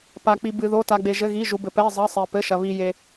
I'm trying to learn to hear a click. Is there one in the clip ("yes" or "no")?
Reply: no